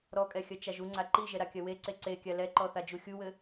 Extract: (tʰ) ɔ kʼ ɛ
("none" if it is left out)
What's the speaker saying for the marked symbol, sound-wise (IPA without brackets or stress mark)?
ɾ